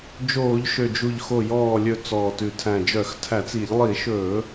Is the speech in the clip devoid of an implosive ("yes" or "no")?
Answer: yes